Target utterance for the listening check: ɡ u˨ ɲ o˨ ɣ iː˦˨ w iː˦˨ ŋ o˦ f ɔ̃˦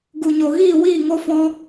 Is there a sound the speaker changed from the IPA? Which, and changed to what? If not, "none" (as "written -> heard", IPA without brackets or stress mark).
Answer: none